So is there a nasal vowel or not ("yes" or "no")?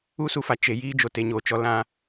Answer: yes